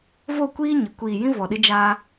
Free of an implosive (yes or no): no